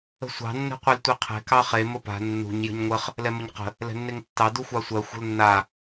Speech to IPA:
ə̤ sʷ ɑ̤ nː ɛ̤ qʷ e l tʷ ɛ qʰ ɛ̤ k ɑ χ e m ə p a̤ nː ṳ ɲ j ə̤ ɲ ŋʷ ə χ | l ɛ m ə ɲ q ə̤ | l ɛ̤ nː e ŋ tː ɑ d u xʷ ɑ sʷ ɜ xʷ ə̤ l nː a

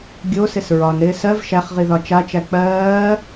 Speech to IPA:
ɡʲ o s ɪ s ɹ ɒ n ɾ ɪː s ɜ v ʃ æ χ ʁ i ð ɒ t͡ʃ a t͡ʃ æ k͡p ɜː

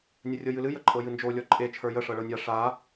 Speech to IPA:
nʲ ə rʲ ɤ j ɨ l ɨ j ə ǃʼ ɤ j ɨ n d͡ʒ o lʲ ɔ ǃʼ e t͡ʃʰ ə˞ j ə ʂ ɤ ɭ ɤ nʲ a ʂ a

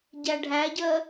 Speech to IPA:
ɟ æ ɖʱ æ ɟ ɜ

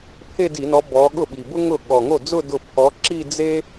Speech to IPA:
pʰ e˥˧ d i˧˩˧ n ɔ˨˦ b ɔ˨˦ ɠ ʊ˥˩ ɓ i˨˩ b ʊ˥ ŋ ʊ˥˩ ɠ ɔ˨˩ ŋ o˥˩ d͡z ʊ˥˧ d ʊ˥˩ pʰ ɔ˨˦ ǁ i˥˧ d͡z e˥

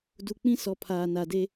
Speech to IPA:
d u˨ k͡p ĩ˦ s ɔ˨ pʰ aː˨ n a˨ d e˦

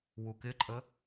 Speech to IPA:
w u k ɪ ǃʼ ə

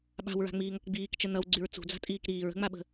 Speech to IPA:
ɓ a̤ w ɹ a̤ ŋ͡m iː ŋ ʌ k ɡ͡b iː k t͡ʃ ə n ʌ w ɡ͡ǀ y ɹ t͡s ṳ d͡z a̤ tʼ iː k ɾ iː ɹ ə̤ ŋ͡m a ɓ ə̤

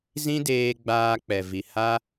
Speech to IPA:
z ĩ˦ d eː˧ ɡ͡b aː˧ k͡p ɛ˨ v i˨ h a˦

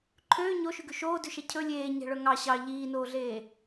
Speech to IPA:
ǃʰ øː ɲ o ʃ ʉ ɡ ʉ ʃ oː d ʉ ʃ ɛ cʰ ɵ lʲ eː ɲ ɛ̤ ɭ œ ŋ ɑ ɕ ɑ ʎ iː n oː ɮ eː

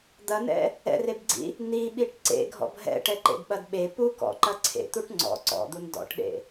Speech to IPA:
d̪ ɐ n ɛ̰ | ɛ̰ r e b ɡ͡ǀ ḭ | n i ɓ i ʈ ǀ ḛ ɡʱ ɔ̰ b ɦ ɛ̰ ʈ ɛ ǃ ḛ d ɓ ɐ d ɓ e p u k ɔ̰ ǃ ɐ ǀʰ ḛ t̪ u ʈ ŋ͡ǀ ɔ̰ ǀ ɔ̰ d̪ u n d ɔ̰ ʈ ɗ ḛ

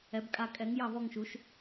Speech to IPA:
ɛ˨˥ b kʼ a˦˨ kʼ ɛ˨˥ ŋ j ɑ˦˨ v ɔ˦˨ ŋ ʃ u˨˥ ʃ

